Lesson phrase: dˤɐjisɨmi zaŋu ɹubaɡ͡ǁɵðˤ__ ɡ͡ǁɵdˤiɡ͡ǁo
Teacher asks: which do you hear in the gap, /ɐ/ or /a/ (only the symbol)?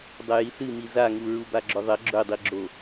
ɐ